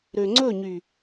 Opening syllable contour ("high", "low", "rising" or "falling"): low